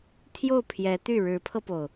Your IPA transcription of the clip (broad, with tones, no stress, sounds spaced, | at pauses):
t̪ʰ j o˥˩ ʊ̯ pʰ j ɛ˧˥ t̪ y˥˩ ɻ ɻ̩˧˥ pʰ ɤ˧ p o˩ ʊ̯